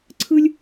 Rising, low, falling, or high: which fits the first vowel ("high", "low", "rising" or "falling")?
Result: high